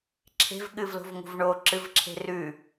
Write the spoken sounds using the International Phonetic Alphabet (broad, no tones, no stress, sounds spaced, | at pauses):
ǁʰ e̤ v ɠ ɨ v l o̤ v ŋ ṳ v ɳ o ǁ ɨ v ǁʰ e̤ r ʉ